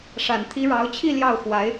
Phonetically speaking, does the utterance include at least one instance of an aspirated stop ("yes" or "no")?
yes